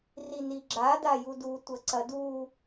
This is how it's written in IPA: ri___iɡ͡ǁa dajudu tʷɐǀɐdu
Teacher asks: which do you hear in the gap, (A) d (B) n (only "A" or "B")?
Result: B